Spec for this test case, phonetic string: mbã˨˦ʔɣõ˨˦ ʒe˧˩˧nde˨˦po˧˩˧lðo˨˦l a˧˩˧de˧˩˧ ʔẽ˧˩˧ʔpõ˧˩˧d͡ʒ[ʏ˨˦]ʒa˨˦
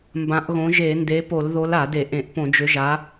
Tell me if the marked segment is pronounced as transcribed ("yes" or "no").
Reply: yes